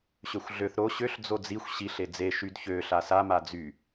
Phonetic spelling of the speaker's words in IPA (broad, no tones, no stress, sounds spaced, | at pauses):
ɕ ø xʷ ɮ ø θ ɾ o ɕ ø ɬ d͡z o d͡z i xʷ ɕ i ɬ e d͡z e ʃ y d ç ø ɬ a s a m a d͡z y